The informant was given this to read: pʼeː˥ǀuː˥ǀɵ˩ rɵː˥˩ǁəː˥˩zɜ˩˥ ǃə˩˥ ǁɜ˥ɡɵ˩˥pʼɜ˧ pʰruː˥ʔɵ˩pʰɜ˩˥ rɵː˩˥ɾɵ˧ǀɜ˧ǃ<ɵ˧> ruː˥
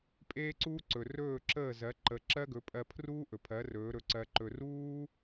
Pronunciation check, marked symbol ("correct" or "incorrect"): correct